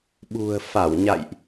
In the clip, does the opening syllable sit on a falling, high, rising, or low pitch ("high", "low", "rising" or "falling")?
low